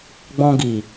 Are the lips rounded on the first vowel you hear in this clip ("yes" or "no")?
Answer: yes